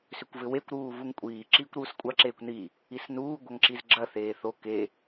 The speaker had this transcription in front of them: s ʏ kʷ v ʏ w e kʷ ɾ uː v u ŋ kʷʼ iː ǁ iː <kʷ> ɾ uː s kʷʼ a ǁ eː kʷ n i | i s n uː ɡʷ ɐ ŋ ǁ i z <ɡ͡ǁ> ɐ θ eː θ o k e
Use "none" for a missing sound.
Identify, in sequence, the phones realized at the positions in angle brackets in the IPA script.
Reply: kʷ, ɡ͡ǁ

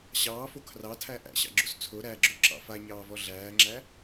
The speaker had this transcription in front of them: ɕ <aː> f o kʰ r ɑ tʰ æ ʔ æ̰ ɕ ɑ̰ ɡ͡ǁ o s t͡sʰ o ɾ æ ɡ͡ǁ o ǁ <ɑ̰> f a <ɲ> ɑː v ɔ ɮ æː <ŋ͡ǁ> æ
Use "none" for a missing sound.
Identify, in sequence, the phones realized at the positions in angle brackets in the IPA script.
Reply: ɑː, ɑ̰, ɲ, ŋ͡ǁ

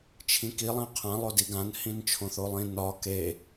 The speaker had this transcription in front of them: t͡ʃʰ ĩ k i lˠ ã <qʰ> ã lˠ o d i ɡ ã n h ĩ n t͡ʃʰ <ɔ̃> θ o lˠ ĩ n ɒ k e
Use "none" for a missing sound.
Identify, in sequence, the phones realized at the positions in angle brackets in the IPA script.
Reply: qʰ, õ

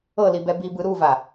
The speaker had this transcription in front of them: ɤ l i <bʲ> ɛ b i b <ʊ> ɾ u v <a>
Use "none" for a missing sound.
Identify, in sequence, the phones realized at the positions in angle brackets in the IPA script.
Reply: b, ɯ, a

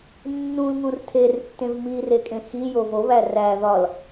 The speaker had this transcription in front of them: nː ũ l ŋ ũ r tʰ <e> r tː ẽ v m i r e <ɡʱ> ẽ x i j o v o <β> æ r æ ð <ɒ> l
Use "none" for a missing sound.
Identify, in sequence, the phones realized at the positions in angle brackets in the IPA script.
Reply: e, kʼ, β, ɒ

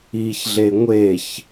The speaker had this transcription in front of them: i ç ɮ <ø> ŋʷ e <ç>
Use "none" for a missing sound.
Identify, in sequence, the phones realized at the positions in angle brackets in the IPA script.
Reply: e, ç

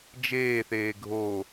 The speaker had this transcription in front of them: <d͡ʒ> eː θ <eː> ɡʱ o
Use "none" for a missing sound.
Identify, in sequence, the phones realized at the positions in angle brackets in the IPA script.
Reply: d͡ʒ, eː

